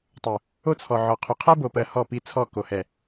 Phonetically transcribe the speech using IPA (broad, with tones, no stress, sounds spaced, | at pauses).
tˤ u˨ | o˦ t͡sʰ ɔ˨ ʕ ɔ˨ qʰ u˨ qʰ ɜ˦ b o˨ p ɜ˨ h ɔ˦˨ p i˦ t͡sʰ ɔ˦˨ k o˨ h ɛ˨